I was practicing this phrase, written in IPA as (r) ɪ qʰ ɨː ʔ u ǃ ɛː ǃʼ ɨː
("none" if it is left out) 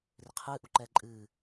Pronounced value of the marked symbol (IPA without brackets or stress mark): r